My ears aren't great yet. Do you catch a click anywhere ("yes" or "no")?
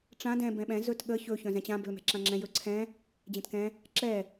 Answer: yes